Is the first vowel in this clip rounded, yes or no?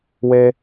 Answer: no